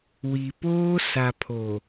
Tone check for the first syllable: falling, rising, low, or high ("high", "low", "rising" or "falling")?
low